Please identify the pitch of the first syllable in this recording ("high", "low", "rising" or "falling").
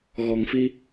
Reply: low